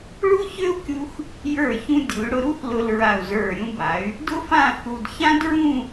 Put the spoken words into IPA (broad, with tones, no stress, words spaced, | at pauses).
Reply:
ɭu˥çø˥u̯kʲu˧x | jə˞˧˩ çũ˧dʲu˩˧y̯ɽʊ˧ɾu˥θ lʊ˧lɹa˧˩u̯zə˞˧˩ ɾʲũ˧ba˩˧y̯ | dʊ˥fã˥˧θu˧d çã˥dɹũ˥˧